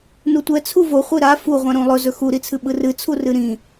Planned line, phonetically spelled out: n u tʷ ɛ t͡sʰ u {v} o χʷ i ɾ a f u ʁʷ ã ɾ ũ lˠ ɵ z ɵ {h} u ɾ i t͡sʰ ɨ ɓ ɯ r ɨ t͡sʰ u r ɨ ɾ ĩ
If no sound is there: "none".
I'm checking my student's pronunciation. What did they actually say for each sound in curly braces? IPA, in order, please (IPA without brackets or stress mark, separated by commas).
v, x